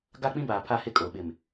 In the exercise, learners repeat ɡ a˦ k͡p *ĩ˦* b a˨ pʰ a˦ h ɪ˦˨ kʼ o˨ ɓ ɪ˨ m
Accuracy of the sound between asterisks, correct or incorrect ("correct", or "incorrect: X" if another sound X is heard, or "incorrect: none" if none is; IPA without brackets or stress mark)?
correct